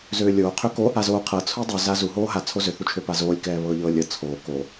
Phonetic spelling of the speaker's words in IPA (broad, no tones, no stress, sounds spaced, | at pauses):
z øː lʲ oː qʰ ø k o | a z oː qʰ ɤ t͡sʰ u dˤ u z a z u ɦ oː ɦ a t͡sʰ o z ø θ u t͡ʃʰ ø p a z oː lʲ k ɛː β ɤː ʎ ɤː lʲ ɤ t͡sʰ oː k o